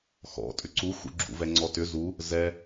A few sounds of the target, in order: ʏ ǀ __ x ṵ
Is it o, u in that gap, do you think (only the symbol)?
u